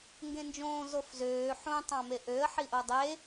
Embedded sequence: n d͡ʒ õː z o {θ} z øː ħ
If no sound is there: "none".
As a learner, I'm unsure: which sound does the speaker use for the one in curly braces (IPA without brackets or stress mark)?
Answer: f